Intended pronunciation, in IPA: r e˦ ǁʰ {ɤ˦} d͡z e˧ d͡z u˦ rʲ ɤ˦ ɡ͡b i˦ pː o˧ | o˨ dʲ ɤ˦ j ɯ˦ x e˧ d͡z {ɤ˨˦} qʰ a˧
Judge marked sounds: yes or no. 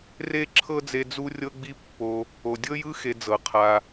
yes, yes

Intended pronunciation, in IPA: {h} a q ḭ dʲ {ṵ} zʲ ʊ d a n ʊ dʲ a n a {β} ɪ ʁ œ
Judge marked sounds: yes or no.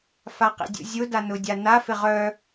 no, yes, no

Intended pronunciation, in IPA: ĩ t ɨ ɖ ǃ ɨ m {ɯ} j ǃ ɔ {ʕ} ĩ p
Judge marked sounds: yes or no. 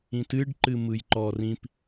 yes, no

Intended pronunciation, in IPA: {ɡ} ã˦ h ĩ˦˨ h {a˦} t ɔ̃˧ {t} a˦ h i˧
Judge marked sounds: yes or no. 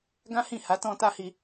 yes, no, yes

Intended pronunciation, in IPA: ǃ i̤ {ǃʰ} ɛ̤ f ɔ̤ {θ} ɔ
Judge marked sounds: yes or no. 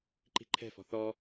yes, yes

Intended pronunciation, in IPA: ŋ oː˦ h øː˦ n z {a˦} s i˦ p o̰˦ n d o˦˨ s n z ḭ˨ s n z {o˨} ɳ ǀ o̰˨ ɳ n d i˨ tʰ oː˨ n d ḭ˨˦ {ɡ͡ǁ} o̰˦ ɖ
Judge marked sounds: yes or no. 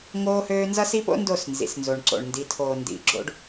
no, yes, yes

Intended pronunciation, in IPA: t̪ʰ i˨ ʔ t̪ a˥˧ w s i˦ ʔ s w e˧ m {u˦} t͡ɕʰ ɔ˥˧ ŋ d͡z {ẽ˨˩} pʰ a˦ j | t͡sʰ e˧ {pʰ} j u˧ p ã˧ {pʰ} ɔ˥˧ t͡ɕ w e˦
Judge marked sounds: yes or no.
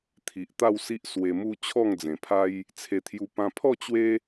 yes, yes, no, yes

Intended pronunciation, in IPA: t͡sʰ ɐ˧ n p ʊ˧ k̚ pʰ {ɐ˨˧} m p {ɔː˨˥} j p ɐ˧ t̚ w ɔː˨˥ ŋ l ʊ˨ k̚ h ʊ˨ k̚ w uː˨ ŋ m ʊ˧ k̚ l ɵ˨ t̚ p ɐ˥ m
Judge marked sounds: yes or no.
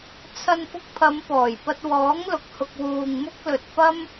yes, no

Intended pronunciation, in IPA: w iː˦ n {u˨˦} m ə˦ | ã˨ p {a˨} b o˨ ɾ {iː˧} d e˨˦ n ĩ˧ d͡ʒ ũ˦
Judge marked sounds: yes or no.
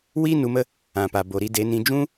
yes, yes, no

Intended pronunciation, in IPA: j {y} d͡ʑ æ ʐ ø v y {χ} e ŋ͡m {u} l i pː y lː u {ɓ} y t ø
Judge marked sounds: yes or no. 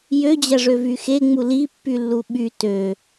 no, no, yes, yes

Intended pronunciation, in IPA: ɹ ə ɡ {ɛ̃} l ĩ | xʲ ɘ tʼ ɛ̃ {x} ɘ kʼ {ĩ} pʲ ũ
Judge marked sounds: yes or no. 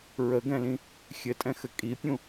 yes, yes, no

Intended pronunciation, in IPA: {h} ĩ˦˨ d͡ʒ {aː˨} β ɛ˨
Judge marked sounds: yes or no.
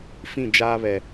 no, no

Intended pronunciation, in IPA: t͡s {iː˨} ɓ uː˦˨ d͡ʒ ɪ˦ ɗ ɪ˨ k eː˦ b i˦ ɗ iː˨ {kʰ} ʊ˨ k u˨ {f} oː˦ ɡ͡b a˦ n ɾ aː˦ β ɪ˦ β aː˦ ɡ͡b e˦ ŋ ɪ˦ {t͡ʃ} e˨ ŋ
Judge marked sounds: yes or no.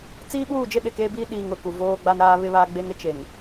no, no, no, yes

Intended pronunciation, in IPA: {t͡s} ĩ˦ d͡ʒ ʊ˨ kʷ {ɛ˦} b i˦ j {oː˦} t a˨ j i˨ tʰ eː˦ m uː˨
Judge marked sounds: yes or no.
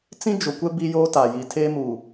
yes, yes, yes

